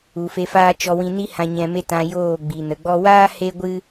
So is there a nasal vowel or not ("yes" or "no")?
yes